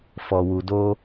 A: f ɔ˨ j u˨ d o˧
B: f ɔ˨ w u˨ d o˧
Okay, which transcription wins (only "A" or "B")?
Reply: B